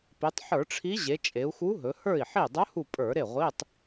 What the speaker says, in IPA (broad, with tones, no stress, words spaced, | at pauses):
pi˩˧tˤ ħə˞˧˩˧ʈ͡ʂʰi˧˥ ʑe˩˧t͡ʃʼe˩˧u̯xu˧˥ɦɵ˩˧ hə˞˥˩i̯ħi˥˩ dˤɵ˧˥hu˧˩ pʼə˞˧˩˧ɾe˥˩ʁʷi˧˥˧tˤ